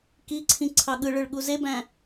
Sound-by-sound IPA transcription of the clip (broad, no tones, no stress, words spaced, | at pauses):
kiǀʰĩ ǀʰɑɠɯɭɯɭ ɠuzebæ̃